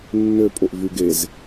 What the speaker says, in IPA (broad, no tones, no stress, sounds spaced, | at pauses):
nː ø pʼ o ʔ v y ɡ e z